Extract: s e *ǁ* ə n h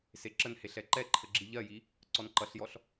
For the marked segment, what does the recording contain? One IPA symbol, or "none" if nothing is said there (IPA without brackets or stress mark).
ǁ